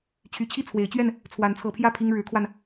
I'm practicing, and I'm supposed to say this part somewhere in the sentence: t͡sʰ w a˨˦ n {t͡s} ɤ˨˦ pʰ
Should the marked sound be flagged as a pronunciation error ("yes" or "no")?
yes